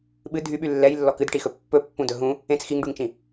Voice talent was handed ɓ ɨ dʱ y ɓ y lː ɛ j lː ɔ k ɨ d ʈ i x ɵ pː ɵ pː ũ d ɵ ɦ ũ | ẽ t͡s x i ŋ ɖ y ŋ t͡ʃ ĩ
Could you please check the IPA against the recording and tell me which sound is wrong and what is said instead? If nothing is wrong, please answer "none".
none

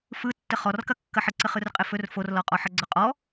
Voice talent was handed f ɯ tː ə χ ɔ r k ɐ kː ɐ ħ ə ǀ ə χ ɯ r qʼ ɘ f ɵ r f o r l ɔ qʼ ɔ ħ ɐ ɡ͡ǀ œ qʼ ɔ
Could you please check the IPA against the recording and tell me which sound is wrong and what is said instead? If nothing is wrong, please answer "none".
œ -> ɵ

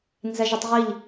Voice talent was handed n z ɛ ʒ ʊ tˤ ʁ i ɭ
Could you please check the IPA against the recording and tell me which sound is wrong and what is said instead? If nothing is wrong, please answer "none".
ɭ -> ʎ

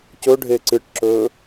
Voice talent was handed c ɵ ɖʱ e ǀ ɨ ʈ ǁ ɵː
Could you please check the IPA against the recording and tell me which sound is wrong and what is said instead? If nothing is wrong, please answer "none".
none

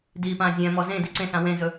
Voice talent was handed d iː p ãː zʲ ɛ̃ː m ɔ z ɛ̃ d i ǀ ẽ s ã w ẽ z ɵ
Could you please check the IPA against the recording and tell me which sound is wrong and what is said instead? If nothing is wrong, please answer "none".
ɛ̃ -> ẽ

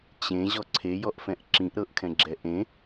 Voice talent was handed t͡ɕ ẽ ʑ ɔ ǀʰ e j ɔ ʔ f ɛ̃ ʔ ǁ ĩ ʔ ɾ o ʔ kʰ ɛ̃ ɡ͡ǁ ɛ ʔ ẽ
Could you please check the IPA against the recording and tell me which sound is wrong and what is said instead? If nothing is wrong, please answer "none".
o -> ɤ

